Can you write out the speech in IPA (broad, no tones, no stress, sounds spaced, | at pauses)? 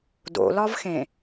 d o̰ l ɒ v x ẽ